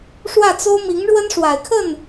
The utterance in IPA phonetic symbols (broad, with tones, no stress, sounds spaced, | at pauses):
ʂ w ä˥˩ t͡s o˥ ʊ̯ m i˧˥ ŋ ɻ w ə˥ n ʂ w a˨˩ ɪ̯ kʰ ə˥˩ n